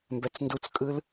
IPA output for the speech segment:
mbɛt͡sndut͡skʼɯl

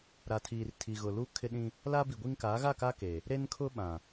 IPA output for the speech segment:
ɾa˨tʰiː˨rtʰi˨ɣʊ˨ lu˦kʰɪ˦ɗĩ˦ | la˦bi˨ɡʷi˦ŋ kaː˨˦ɣa˦˨ka˦ ke˨ | ɾe˦n kʰʊ˦ɓã˨

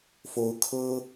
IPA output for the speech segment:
fo˧˥ʊ̯kʰɤ˥

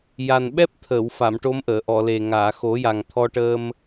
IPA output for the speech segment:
ja˨˩nɓɛ˦˥p̚ t̪ʰə˨˩˨wfa˨˩˨m ʈo˧˥mʔəː˨˩˨ʔɔ˨˩˨le˨˩ ŋaː˨˩˨xo˨˩˦ja˨˩ŋt̪ʰɔ˧ ʈəː˧m

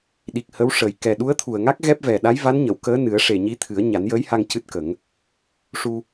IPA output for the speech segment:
ɗi˨˩k̚ hə˧˥wʂəː˨˩j kɛ˨˩ɗu˧˥ə̯t̪ʰu˨˩ə̯ŋa˦˥k̚ ɣɛ˦˥p̚vɛ˨˩ ɗa˧˥jva˧˥nɲə˨˩˨w kəː˧˥nɨ˨˩˦ə̯ʂe˨˩ ɲi˧˥t̪ʰɨ˨˩˦ə̯ ɲa˨˩˦njəː˧˥jha˧ŋ cɨ˦˥t̚kə˨˩˦ŋ | ʂu˧

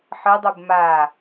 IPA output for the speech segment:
ħɯdˤub ma

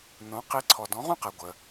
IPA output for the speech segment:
nõ˩˧˩ qi˨˥ ǀʰɔ˩˧˩ dɔ̃˨˥ʁũ˥˨qɛ˩˧˩ ɡʷə˩

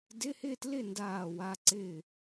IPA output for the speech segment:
dɪ˧˥˧hɪ˥˨tlɪ˥˨ ndaː˥˨wa˧˥˧ ǀɪː˥˨

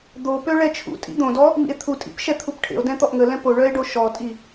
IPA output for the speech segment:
d̪opø ɭɛt͡ʃʰṵtʼḭ d̪õdɔ | mḭe̯t̪ʰutʼḭp ʃɛt̪ʰupʈʰḛo̯dɛ̃ t̪ɔʔŋəlɛ̃ poɭœe̯ ɖoʃɔtʼi

